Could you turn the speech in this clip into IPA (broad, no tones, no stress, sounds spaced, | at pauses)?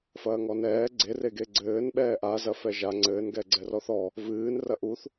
f ɐː ŋ ɔ n ɛː ɡ͡ǀ e r e ɡ e ɡ͡ǀ ɘː n ɓ ɛː ʔ a z ɐ f ɛ ʒ a ŋ͡ǀ ɘː n ɡ ɛ ɡ͡ǀ ɛ r ɔ θ ɔ | v ɨː n r ɐ ʔ u θ